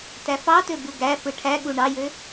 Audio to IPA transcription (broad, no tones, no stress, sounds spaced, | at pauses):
t æ f ɑ t ø b u ɡ æ f ɯ ʈʰ æ ɠ u ɳ ɑ j ø